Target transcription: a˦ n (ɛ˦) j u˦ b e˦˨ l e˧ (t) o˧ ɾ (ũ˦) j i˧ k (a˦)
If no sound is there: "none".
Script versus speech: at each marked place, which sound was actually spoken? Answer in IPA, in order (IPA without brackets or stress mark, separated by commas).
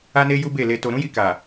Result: e˦, t, ũ˦, a˨